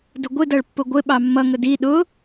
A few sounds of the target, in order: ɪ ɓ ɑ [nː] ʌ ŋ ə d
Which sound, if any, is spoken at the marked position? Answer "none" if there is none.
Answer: mː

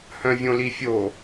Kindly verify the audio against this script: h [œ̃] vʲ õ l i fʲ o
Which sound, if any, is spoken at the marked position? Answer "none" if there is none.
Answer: œ̃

